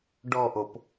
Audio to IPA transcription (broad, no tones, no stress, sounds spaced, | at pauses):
ɖ ɔ ʔ o p